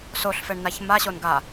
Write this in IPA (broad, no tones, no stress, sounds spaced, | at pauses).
s o ɬ f ɛ ɳ n a ç m a ɕ o n ɡ a